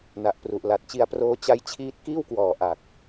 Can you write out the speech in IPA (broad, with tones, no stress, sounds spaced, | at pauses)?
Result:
n a˨˩ ʔ p r u˨˩ ʔ l a˨˩ t̚ t͡ɕ i˧ a̯ p r oː˦˥ t͡ɕ a˦˥ j t͡ɕʰ iː˦˥ t̚ k iː˥˩ w k w ɔː˨˩ ʔ a˨˩ k̚